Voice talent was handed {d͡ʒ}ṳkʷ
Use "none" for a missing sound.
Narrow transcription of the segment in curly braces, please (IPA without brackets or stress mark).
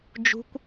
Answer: d͡ʒ